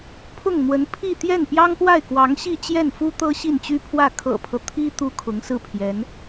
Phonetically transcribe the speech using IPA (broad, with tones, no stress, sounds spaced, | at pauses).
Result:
pʰ ʊ˥˩ ŋ n̪ w ə˧˥ n pʰ i˥˧ t̪ j ɛ˥˩ n p j ɑ˥ ŋ p w a˥˩ ɪ̯ k w ɑ˧˥ ŋ ɕ i˥˧ t͡ɕ j ɛ˥˩ n f u˥ t̪ ɤ˥ ɕ i˥˩ n t͡ɕ y˥ pʰ w ä˥˩ kʰ ɤ̰˨˩ pʰ ɤ˦ t̪ʰ i˥ t̪ u˥ kʰ ʊ˧˥ ŋ s ɹ̩˥˩ pʰ j ɛ˧˥ n